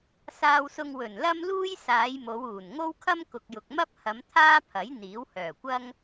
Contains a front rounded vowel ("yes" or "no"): yes